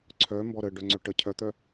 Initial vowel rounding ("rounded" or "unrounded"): rounded